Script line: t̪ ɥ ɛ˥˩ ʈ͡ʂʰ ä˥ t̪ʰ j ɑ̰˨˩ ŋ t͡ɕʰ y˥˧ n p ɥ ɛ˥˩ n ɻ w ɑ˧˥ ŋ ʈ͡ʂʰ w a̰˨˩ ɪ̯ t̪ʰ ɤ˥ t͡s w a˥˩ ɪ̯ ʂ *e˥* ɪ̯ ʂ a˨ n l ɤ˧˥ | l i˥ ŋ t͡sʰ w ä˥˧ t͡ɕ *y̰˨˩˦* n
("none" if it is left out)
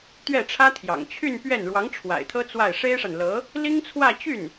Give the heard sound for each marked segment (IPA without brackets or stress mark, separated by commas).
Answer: e˥, y˥˩